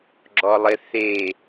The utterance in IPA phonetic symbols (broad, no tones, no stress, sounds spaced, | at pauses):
ɡ͡ǁ ɔ lˠ ɪ θ e